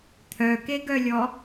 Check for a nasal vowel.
absent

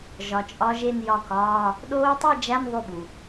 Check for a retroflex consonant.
absent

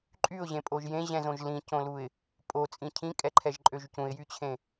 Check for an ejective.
present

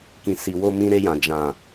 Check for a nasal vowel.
present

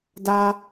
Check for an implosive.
absent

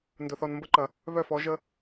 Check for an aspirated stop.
absent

